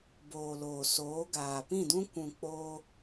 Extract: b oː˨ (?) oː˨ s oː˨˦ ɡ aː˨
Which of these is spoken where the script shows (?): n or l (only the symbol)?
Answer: l